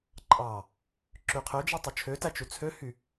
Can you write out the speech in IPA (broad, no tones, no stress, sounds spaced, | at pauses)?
ǃʼ ɑ | ǁ y qʰ ø d͡ʒ i tˤ u t͡ʃʰ ø t æ t͡ʃ u t͡sʰ ø h y